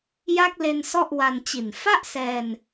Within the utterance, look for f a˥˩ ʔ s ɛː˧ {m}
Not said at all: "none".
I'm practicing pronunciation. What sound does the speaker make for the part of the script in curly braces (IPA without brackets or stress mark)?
n